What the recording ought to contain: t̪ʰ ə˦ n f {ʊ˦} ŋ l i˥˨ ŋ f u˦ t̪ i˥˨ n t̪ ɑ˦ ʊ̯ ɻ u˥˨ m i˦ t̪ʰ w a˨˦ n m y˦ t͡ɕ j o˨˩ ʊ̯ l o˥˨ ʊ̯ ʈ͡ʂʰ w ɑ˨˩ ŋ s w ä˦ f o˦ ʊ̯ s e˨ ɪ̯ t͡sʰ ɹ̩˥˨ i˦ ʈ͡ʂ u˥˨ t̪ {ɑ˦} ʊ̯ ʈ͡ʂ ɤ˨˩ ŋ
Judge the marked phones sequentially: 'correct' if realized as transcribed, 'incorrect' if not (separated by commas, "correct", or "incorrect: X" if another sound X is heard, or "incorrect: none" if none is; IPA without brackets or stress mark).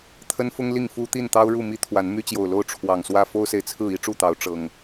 correct, incorrect: ɑ˨˦